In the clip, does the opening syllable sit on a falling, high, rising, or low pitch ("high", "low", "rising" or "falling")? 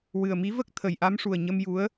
low